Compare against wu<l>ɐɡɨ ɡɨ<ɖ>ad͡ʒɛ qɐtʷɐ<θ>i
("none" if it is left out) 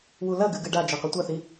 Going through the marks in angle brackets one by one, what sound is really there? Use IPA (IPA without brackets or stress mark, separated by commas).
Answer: l, ɖ, θ